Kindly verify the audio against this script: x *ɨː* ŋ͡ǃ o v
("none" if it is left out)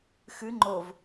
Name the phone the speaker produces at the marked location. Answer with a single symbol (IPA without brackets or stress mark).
ɨ